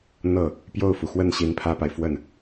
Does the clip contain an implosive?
no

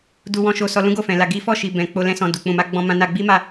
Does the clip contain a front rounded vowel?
no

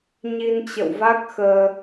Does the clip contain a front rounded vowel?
no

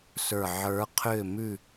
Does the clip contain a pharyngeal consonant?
yes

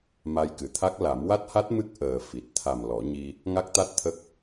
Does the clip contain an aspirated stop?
yes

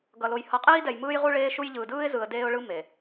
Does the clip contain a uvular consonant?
yes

